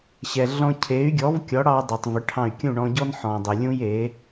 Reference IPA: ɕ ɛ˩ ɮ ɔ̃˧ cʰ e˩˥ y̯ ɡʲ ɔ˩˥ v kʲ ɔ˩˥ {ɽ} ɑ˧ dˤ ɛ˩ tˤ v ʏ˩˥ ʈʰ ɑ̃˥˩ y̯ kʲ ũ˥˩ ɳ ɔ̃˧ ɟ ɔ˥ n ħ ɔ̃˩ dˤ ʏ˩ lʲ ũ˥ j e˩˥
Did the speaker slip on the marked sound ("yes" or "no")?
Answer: no